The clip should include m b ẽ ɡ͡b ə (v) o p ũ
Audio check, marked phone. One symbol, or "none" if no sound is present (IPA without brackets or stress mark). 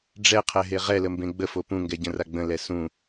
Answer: f